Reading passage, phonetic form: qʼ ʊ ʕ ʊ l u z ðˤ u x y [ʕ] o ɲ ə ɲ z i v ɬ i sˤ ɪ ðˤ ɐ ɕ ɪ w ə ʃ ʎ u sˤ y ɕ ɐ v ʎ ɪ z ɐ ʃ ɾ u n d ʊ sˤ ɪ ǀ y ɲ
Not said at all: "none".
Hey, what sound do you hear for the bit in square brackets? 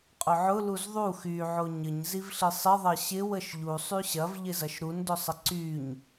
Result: ʕ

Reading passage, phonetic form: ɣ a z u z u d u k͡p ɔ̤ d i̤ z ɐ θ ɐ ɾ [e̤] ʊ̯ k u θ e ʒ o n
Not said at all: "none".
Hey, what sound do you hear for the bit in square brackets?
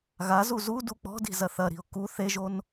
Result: i̤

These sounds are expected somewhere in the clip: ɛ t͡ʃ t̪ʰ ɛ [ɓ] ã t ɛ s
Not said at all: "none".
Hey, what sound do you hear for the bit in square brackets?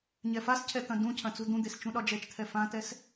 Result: f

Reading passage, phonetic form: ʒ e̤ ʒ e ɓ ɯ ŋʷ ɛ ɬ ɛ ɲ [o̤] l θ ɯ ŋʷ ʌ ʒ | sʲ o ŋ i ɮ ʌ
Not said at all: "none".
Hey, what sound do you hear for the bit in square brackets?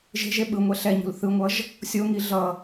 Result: ṳ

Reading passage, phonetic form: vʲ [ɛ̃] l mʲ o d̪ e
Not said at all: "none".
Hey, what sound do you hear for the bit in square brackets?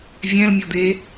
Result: ɛ̃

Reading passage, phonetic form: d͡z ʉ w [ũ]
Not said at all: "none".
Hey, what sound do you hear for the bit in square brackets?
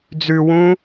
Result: ũ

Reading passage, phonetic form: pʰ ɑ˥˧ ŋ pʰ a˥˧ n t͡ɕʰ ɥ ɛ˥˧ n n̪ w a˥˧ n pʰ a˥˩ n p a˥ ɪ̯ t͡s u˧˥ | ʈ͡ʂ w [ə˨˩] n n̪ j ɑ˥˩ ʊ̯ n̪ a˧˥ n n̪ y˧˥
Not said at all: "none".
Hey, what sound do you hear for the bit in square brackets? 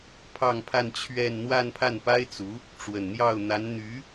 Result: ə˨˩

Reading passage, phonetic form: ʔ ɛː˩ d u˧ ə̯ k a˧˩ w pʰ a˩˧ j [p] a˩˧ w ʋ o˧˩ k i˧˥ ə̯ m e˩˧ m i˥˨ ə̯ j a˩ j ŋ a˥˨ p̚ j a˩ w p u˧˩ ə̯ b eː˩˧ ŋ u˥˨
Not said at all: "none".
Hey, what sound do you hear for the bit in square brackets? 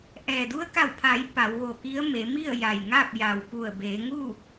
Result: p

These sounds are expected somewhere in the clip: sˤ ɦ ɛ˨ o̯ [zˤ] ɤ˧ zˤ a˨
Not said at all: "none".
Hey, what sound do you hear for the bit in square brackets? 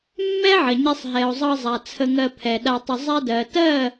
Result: zˤ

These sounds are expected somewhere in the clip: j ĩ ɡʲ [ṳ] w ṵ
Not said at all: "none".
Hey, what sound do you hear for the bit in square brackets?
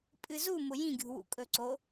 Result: ṳ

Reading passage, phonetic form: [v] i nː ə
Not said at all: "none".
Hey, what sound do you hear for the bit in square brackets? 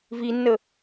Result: v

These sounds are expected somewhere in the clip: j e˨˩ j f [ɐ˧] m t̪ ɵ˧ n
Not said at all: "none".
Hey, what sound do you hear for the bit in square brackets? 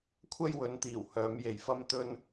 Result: ɐ˧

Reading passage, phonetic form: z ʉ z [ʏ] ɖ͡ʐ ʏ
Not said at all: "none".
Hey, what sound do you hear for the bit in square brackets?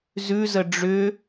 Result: ə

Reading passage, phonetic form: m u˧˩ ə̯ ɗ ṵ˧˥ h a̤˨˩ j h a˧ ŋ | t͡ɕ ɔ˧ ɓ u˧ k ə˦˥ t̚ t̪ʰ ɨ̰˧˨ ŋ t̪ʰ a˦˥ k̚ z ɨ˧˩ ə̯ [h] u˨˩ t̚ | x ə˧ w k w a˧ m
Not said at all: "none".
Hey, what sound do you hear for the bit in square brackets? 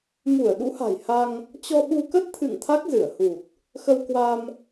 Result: h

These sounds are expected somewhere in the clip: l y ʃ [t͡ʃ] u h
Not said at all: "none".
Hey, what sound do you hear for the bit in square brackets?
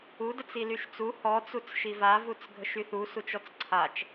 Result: t͡s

